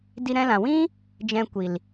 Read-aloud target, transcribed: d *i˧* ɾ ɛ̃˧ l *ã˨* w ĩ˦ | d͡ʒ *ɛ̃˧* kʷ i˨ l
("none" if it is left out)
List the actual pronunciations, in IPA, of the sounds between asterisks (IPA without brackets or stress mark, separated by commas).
i˧, ã˨, ɛ̃˨